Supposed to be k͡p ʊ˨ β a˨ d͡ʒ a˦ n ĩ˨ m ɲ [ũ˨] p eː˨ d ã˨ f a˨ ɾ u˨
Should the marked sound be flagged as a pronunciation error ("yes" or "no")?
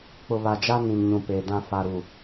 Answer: no